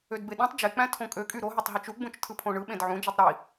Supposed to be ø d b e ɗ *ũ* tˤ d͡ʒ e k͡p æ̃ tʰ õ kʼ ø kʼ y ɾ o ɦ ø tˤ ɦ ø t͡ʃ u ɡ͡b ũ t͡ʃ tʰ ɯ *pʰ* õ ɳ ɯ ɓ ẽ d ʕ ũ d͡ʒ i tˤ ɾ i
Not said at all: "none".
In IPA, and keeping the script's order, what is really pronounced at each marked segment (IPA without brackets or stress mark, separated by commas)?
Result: õ, pʰ